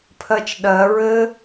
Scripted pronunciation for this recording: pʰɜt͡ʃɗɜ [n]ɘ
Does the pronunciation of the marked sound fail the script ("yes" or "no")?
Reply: yes